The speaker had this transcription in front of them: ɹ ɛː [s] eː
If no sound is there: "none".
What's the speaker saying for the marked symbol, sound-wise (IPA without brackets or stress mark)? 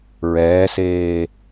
s